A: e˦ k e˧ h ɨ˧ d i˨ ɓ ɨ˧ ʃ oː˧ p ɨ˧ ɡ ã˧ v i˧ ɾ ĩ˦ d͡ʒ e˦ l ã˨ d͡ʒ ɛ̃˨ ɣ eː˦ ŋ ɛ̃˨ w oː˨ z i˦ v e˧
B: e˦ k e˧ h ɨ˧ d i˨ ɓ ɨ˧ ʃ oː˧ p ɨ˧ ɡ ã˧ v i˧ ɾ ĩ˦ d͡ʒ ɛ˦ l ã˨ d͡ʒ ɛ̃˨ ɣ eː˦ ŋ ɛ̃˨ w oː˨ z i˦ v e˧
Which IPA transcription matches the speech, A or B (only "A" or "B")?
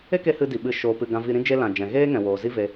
A